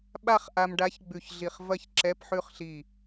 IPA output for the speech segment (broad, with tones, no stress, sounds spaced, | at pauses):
ɓ a˥˧ χ ʔ a˧ m ɖ a˧˥ ç ɡ͡b ʉ˧˩ ç ɮ i˧˩ χ v ɐ˥˧ ç ǁ ɛ˧˥˧ p ħ ʉ˥˧ χ ɬ i˧˩